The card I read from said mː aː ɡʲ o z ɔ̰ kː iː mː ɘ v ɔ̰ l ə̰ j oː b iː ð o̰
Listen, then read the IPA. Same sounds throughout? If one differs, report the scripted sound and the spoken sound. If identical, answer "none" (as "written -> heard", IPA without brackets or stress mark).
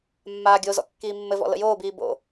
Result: ð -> b